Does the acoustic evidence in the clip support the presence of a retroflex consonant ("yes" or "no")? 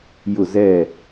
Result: no